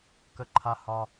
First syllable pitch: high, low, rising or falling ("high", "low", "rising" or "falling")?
high